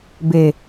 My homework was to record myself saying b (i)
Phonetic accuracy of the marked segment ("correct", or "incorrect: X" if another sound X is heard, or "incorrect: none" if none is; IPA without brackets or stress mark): incorrect: e